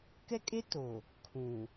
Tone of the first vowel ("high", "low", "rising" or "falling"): high